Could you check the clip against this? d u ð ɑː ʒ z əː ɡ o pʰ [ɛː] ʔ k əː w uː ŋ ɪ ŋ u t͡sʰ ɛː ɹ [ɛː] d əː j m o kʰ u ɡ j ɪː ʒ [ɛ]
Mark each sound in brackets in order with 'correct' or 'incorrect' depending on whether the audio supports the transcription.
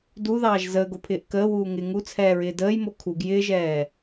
incorrect, incorrect, incorrect

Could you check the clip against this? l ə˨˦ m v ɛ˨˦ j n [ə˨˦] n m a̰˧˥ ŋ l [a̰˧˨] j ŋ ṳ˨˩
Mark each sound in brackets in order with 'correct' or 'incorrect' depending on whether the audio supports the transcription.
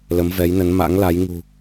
correct, incorrect

